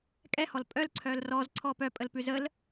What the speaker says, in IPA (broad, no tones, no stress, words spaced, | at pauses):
kʼɛhɔl pʼœl ǀʰœlrɔz ǀʰɔpœ pʼəlpʉzəl